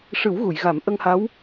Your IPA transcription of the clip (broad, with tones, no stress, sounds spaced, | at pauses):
ʂ ɨ˨˩˦ w ɣ u˨˩˨ j ɣ a˨˩˦ m ʔ ə˧ ŋ h a˧˥ w